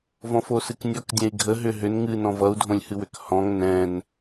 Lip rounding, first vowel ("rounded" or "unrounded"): rounded